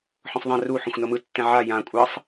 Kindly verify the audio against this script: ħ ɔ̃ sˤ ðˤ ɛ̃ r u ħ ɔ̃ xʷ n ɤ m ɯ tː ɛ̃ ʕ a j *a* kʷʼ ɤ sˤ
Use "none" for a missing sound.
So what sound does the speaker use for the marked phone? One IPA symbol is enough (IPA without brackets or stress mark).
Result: ã